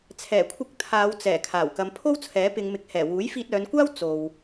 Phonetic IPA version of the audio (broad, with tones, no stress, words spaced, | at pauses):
t͡sʰɛː˨˩kʷʰɪ˧k̚ t̪ʰaː˨˧wt͡sɛː˨˩ kʰaː˨˩wkɐ˨˧mpʰo˥w t͡sʰɛː˨˥pɪ˨˧ŋmɪ˨˥k̚hɛː˨˩ wuː˨˥jfiː˧t̚ œː˨˧nkʷaː˥w t͡so˨w